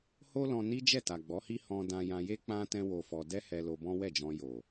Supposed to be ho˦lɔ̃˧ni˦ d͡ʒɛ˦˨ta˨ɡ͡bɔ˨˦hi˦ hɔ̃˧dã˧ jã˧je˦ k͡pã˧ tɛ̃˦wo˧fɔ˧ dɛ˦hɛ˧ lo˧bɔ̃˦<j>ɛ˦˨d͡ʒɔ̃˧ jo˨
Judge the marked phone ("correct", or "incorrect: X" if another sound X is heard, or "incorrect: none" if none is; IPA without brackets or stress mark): incorrect: w